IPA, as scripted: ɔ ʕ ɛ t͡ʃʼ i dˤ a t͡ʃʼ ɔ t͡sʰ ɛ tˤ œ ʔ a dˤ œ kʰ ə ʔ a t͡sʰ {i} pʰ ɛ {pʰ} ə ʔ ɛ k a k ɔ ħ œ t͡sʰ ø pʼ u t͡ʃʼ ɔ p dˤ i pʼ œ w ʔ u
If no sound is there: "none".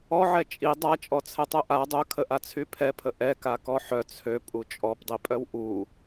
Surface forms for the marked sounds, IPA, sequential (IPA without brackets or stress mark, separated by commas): y, pʰ